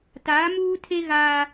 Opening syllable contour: rising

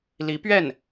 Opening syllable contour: rising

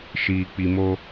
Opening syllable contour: low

